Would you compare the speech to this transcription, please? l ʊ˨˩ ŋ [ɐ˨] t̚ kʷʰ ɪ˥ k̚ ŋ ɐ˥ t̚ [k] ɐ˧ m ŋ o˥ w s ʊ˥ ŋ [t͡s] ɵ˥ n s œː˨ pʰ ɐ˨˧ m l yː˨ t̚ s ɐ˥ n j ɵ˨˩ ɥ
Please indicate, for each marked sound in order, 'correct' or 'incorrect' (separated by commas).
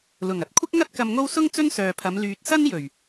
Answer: incorrect, correct, correct